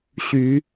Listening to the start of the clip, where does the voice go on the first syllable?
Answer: rising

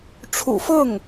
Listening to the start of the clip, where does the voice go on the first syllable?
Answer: low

